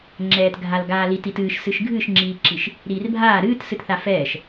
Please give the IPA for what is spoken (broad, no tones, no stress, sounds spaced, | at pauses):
ŋ͡ǁ ɛː t ɡʱ a l ɡ aː l i t i t ɨː ʃ s ɨ ʃ ɡʱ ɨ ʃ ŋ͡ǁ iː ǁ i ʃ | ɾ iː r bʱ aː ɾ ɨː t s ɨ t θ a f ɛː ʃ